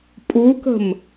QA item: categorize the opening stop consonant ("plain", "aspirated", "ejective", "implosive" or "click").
ejective